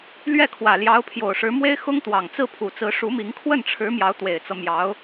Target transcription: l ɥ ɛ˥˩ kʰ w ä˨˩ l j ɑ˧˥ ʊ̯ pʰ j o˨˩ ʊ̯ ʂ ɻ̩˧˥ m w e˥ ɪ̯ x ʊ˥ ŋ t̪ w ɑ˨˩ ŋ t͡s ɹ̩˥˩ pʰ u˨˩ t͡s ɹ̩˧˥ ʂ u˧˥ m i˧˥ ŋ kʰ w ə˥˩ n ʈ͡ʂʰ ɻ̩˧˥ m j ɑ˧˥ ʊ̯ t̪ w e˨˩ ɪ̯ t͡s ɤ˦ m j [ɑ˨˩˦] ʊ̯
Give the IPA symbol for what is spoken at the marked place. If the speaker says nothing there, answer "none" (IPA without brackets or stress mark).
ɑ˧˥